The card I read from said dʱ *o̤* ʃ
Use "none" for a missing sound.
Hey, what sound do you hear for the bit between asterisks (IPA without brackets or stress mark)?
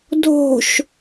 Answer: o̤